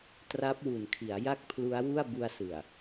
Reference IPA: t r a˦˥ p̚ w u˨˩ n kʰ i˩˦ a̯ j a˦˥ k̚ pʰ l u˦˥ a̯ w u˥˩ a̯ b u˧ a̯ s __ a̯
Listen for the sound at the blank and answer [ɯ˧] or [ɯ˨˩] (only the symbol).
ɯ˨˩